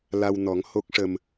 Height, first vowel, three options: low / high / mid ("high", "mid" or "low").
low